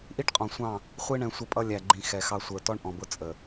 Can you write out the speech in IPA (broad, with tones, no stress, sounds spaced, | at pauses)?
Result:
ʔ i˦ ʈ qʼ ɔ̃˨ sʷ ɑ̃˦˨ | χʷ i˦ ɳ ɛ̃˨ sʷ ə˦˨ pʼ ʌ˦ lʲ æ˨ ɡ͡ǃ ĩ˨ x ɛ˨ x ɑ˦ sʷ ə˞˨ t ɔ˦ ɳ ʔ ɔ̃˨ b ʊ˦ t͡sʼ ə˨